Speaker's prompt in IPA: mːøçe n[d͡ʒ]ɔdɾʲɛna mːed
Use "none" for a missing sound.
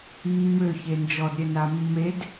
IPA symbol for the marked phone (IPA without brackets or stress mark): d͡ʒ